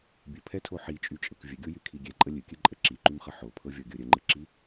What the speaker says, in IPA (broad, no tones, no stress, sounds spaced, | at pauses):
bʲ ə pʰ ɛ tʰ o ħ i t͡ʃʼ y t͡ʃʼ ɤ k vʲ ə ɡʲ o j y kʰ i ɡʲ ɛ ǃʼ ə lʲ ɨ kʲ ɨ ǃʼ ə ǁ i ǃ y m χ ə ħ o pʰ ɤ vʲ ɔ ɡʲ ɤ ɾʲ ə ŋ͡ǃ ɨ ǁ i